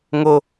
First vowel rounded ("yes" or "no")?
yes